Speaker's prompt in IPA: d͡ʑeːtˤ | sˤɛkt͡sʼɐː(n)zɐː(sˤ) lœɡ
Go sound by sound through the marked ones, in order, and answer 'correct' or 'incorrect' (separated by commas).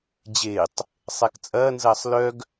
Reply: correct, correct